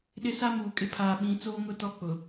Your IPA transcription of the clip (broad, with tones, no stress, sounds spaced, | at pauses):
ɗ ɪ˦ s a˦ m uː˨ kʼ ɪ˦ pʰ aː˨ ɓ ĩ˨˦ t͡s oː˦ ŋ ʊ˦ t ɔ˦ k͡p ʊ˨